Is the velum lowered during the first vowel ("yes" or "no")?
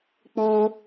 no